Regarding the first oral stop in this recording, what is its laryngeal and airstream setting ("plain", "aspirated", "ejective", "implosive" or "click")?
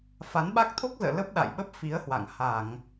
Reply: implosive